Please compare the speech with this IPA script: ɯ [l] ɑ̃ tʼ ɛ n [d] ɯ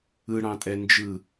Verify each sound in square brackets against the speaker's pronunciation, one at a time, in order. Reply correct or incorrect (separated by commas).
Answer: incorrect, incorrect